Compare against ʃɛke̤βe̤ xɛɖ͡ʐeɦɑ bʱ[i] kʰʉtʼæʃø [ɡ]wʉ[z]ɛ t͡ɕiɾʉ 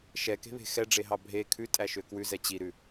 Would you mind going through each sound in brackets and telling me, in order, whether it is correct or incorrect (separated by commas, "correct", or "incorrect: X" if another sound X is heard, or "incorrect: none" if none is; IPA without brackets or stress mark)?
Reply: incorrect: e, incorrect: k, correct